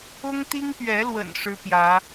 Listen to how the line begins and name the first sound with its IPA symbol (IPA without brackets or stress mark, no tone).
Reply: ʊ